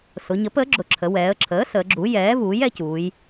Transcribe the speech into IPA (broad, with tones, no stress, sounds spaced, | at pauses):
s ʊ˩˧ ɲ ə˩˥ p əː˩˥ ɡ͡ǁ ʊ˩˧ ǁʰ ə˩˧ w ɛː˩˧ ə̯ ǁʰ əː˩˥ s əː˩˧ ɡ͡ǁ u˩˥ j ɛː˩˥ v uː˩˥ j ɛ˩˧ c uː˩˧ j